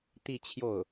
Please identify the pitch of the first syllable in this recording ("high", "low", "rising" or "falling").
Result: falling